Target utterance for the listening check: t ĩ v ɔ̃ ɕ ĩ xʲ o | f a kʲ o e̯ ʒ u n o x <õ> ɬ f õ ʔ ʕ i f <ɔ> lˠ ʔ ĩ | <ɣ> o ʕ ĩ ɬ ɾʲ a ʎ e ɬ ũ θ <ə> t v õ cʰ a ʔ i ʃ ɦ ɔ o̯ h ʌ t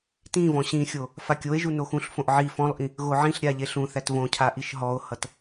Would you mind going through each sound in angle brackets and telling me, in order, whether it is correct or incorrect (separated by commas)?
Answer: incorrect, incorrect, correct, incorrect